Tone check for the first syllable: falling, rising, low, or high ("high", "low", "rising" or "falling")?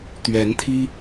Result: rising